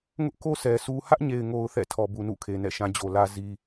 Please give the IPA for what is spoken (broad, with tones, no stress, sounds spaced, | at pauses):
ŋ ʊ˦ ʔ k o˦ sʰ ɛ˨ s u˦ h ä˦ ʔ ɲ e˨ ɪ̯ ŋ o˨ ʊ̯ θ ɛ̰˦˨ tʰ ɔ˨ b u˨ n ṵ˦˨ kʰ e˨ n ɛ̰˦˨ ʃ ã˦ d͡ʑ o˨ l ä˦ z i˦